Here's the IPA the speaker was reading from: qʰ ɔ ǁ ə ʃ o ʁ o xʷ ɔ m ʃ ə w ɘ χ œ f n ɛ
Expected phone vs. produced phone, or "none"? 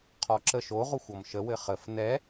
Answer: œ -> ə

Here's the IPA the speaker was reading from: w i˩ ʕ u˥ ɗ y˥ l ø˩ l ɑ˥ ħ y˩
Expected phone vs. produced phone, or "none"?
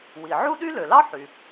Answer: none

